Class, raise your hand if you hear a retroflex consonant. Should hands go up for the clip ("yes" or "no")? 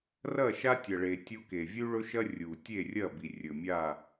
yes